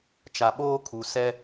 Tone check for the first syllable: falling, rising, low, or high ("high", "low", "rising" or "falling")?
low